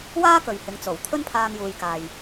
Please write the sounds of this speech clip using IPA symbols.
waː˥ kɵ˨ɥhɪ˨˥ŋt͡so˨˩w t̪ʰɵ˥npʰaː˧ŋjuː˨jkaː˨j

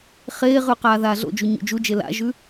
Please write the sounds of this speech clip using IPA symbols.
χeːʁʉ qaːðaːɮo̰d͡ʒu ɲṵd͡ʒud͡ʒe la̰ʒʉ

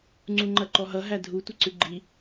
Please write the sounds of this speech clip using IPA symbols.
ŋ͡ǀuŋ͡ǃɐǃɔɦʌ ɦædʱu tʷɐǀʉɡ͡ǃi

